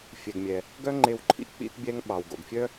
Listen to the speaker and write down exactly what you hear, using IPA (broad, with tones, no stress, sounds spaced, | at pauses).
fʲ ɛ˩ ɡ mʲ ɛ˩ | ɡ œ˥ ŋ͡ǃ e˧ w ǃʰ ḭ˥ k͡p ḭ˧ t bʲ ɛ˧ ŋ ɓ ɑ˩ w ɡ o̰˩ ɡ fʲ œ˥